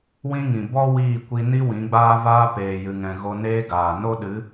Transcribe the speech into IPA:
w ĩ˦ ŋ ĩ˨ b ɔ˦ w iː˦˨ kʷ i˧ n i˦ w ĩ˨˦ ɡ͡b aː˦ v aː˦ p eː˨ j ɨ˨ ŋ ɛ̃˨ ɣ o˧ n eː˦ ɡ aː˨ n o˦ ɗ ɨ˨˦

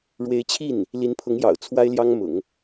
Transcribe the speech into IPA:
ɻ w e˧˥ ɪ̯ t͡ɕʰ i˥˩ n | l i˧˥ n pʰ ʊ˧˥ ŋ j ɑ̰˨˩ ʊ̯ t͡sʰ w a˥ ɪ̯ l j ɑ˥ ŋ m ʊ̰˨˩˦ ŋ

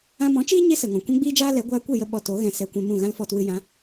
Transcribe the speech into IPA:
ã˧ m ɔ̃˨˦ t͡ʃ iː˦ ɲ e˦ s ə˨ ŋ ɔ̃˨ kʷ ɛ̃˦ ɡ͡b iː˦ d͡ʒ aː˦ l ɛ˨˦ ɡʷ aː˧ kʷ e˦˨ j ə˧ ɓ ɔ˧ t o˨˦ ɣ ɛ̃˧ s ɛ˧ kʷ ɛ̃˧ m ũ˦˨ ɣ ã˦ l f ɔ˧ t w ɨ˧ j ã˨˦

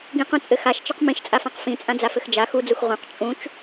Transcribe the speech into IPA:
ɡ ĩ q ũ t͡sʼ ɘ x a ʃ t͡ʃ ɘ q m ĩ ʃ t͡sʼ a f ã q f ĩ t͡sʼ ã d͡z a f ɘ x d͡ʒ a x u d͡z u x ʁ ũ q t͡ʃʼ ũ t͡ʃ

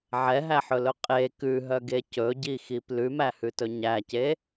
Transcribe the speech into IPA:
ʕ ɛ ɦ æ ħ ɵ l ɵ qʼ e k ʉ ɦ œ ɡ e c ɵ ɟ i x i p l ʉ m æ h ʉ t ɵ ɲ æ c e

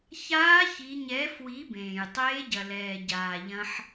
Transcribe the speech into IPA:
ç aː˧˥ ç i˩˧ ɲ ɛ˩˧ f w i˩˧ b ẽː˩ j tˤ eː˧˥ ɟ ɐ˩ l ɛː˩ ɟ aː˩ ʎ ɐ̃˧ ħ

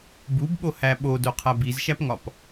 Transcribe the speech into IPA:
b u b ɓ o h æ ɓ o d o qʰ æ b i z ʃ æ p ŋ ɒ p

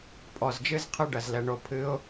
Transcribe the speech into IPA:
pʼ ɔ˨ z d͡ʒ ɨ˦ z qʰ ɨ˦ ɖ ɐ˨ z l ɛ˨ ɳ o˨ pʰ ɨ˨˦ ʊ̯

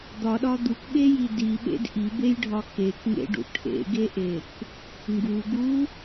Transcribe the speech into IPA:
d̪ ɒ ɗ ɒ d̪ u k ɓ e j i d i ɓ ḛ d ʔ i b e j ɖʱ ɒ k e k ŋ ḛ ɖ ṵ ʈʰ ḛ ɡ e ʔ e k | ŋ ɡ u ɡ u

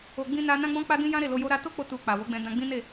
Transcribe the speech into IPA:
o˧ ɡ͡b ĩ˧ n a˧ n ã˦ ɡ͡b ɔ̃˦ k͡p a˦ d ĩ˦ j ã˦ ɾ e˦˨ l o˧ j o˦ ɾ a˦ t o˦ k͡p o˧ t u˧ k͡p a˨ w o˨˦ ɡ͡b ɛ̃˧ d ã˧ ɡ͡b ĩ˦ n e˦˨

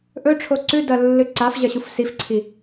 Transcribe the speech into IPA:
ʔ ɵ ʈ͡ʂʰ o ǀ ʉ d ɐ lː ɨ ǀ a f ʑ ɐ ɕ u f s i f ǀʰ i

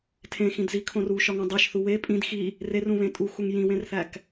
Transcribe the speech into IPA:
tʰ ẽ x ĩ d z i kʰ õ r u ʃ ɒ ŋ ũ dˤ e ʃ θ u w e pʼ ĩ d x i | r e r ũ β ẽ tʼ u x u ŋ j ĩ w ẽ r θ æ k

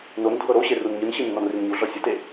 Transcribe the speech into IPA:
n o n dʱ ɤ ɾ o ɕ e r u n ɲ ɯ n ɕ i nː ɔ n r i n ɲ u ɮ ɔ sʲ ɯ t e

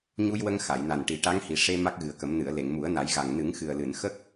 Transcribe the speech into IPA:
ɲ u˧ j w ə˧ ŋ x a˨˩˨ j n a˨˩ n ʈ i˨˩˦ ʈ a˧˥ ŋ h i˨˩ ʂ e˧ m a˦˥ k̚ ɣ ɨ˨˩ ə̯ k ə˨˩˦ m n ɨ˨˩˨ ə̯ l e˨˩˨ ŋ m u˨˩˦ ə̯ n a˨˩˦ j ɣ a˨˩ ŋ n ɨ˨˩˦ ŋ x ɨ˨˩ ə̯ l ɨ˨˩˨ n x ə˦˥ k̚

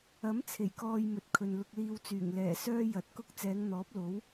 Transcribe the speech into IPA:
ɐ˨˥ m t͡sʰ e˨˩ j k ɔː˧ j m ɵ˨ t̚ kʰ ɵ˨ n l ʊ˧ k̚ l iː˧ w t͡s yː˨˩ ŋ l ɛː˨˩ s œː˥ j ɐ˨ t̚ k ʊ˥ k̚ t͡s ɛː˨˧ ŋ n̪ ɔː˨˥ p̚ l o˨˥ w

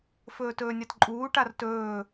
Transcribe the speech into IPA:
f ɵː t ɵː nʲ a t ǃʼ uː ʈ a r t ɵː

